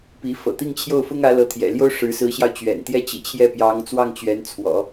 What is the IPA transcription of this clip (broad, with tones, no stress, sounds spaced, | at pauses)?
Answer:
p i˧˥ f ɤ̰˨˩ t̪ i˥˧ ŋ t͡ɕʰ j o˥˩ ʊ̯ f ʊ˥ ŋ ä˧˥ l ɤ˧˥ t̪ʰ j ɛ̰˨˩ l j o˥ ʊ̯ ʂ ɻ̩˧˥ s ɹ̩˧˥ ɕ j ɑ˧ ʊ̯ t͡ɕ ɥ ɛ̰˨˩ n t̪ j ɛ˥ t͡ɕ ḭ˨˩ t͡ɕʰ j ɛ˥˩ p j ɑ˧˥ ŋ t͡s w ɑ˥˩ ŋ t͡ɕ ɥ ɛ˧˥ n t͡sʰ w ɔ̰˨˩˦